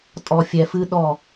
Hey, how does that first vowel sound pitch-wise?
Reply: low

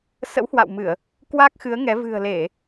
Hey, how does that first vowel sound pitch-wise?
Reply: rising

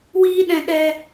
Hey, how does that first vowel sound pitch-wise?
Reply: high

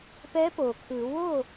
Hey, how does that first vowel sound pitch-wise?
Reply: rising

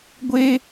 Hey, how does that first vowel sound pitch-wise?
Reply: high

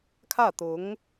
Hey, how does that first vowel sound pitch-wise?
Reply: falling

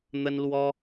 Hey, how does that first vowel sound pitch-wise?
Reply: high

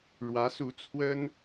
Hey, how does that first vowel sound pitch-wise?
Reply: rising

